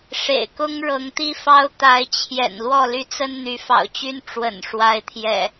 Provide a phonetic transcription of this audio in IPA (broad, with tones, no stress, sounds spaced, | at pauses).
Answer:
ʂ ḛ˨˩ ɪ̯ k ʊ˦ ŋ ɻ ɤ˨˦ ŋ t̪ i˦ f ɑ˦ ʊ̯ t̪ a˨˦ ɪ̯ t͡ɕʰ j ɛ̰˨˩ n l w ɔ˥˨ l y˥˨ t͡s ə˦ n n̪ y˨˦ f ɑ̰˨˩ ʊ̯ t͡ɕ y˦ n ʈ͡ʂ w ə̰˨˩ n ʂ w a˨˦ ɪ̯ t̪ʰ j ɛ̰˨˩